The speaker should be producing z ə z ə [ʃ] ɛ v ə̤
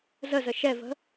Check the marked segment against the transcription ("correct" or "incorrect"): correct